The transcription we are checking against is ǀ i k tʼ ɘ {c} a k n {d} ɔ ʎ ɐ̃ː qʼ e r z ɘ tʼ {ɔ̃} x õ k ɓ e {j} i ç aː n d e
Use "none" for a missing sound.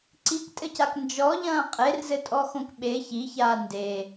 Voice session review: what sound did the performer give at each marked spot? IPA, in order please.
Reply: c, d͡ʒ, ɔ, ç

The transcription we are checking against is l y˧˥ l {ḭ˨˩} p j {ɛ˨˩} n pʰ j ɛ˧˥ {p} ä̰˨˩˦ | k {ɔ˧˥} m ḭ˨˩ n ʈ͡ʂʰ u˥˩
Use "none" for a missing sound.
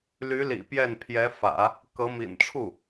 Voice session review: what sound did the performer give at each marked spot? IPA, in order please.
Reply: ḭ˨˩, ɛ˥˩, f, ɤ˧˥

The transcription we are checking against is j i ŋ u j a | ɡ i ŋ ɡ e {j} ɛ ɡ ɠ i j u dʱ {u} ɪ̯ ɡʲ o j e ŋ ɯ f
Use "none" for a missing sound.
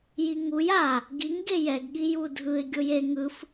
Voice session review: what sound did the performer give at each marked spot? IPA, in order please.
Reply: j, ɯ

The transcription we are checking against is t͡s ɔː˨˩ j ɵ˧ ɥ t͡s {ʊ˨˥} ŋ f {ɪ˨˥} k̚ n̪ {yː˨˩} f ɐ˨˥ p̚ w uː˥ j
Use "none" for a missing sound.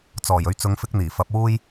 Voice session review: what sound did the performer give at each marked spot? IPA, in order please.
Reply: ʊ˨˧, ɪ˥, iː˨˩

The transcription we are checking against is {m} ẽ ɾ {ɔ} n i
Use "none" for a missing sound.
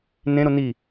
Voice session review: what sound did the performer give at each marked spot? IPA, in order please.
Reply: n, o

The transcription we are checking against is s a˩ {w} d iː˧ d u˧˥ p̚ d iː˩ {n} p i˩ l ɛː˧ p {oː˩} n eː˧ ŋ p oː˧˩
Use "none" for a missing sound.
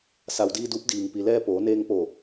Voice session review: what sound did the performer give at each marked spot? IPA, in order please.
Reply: w, ŋ, oː˩˧

